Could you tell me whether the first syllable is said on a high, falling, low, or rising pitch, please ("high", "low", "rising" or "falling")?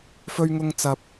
high